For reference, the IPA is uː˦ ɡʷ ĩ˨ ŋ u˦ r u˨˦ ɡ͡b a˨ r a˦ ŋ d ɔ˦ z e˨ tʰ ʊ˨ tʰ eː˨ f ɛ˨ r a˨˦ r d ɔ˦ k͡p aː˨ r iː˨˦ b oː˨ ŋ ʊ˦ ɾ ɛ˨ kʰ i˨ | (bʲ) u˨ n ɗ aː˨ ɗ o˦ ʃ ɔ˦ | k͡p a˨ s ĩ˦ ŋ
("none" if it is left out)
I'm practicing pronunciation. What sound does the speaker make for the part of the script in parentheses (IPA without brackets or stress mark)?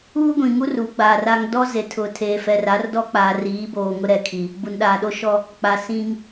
b